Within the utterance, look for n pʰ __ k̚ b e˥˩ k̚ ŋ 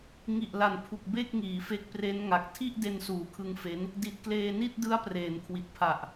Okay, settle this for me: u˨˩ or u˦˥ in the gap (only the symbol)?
u˨˩